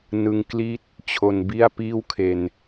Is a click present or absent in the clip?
absent